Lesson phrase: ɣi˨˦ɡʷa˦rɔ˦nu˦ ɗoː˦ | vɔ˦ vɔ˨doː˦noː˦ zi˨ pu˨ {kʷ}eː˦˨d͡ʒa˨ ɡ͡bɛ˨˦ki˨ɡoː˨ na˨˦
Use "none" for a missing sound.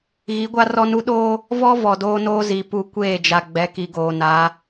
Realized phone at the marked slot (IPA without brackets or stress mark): kʷ